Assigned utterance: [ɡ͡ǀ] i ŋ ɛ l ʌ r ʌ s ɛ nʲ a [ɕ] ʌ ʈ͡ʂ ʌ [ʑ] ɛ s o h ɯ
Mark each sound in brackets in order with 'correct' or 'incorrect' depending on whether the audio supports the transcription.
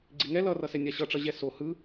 correct, correct, correct

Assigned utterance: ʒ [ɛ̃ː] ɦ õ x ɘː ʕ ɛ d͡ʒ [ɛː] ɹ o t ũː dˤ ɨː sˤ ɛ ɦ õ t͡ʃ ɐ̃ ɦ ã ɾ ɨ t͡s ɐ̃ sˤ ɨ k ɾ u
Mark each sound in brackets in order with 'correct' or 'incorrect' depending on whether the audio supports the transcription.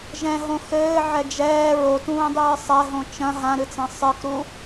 incorrect: ɛ̃, correct

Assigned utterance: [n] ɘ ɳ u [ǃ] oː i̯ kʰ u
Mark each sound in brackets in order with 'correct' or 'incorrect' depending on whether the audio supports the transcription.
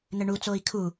correct, incorrect: t͡s

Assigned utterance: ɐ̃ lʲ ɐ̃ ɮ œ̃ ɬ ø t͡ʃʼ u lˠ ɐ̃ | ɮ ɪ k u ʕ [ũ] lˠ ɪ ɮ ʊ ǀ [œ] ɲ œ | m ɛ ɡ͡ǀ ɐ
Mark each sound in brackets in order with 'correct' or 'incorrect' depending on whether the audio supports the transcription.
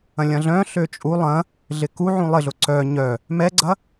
correct, correct

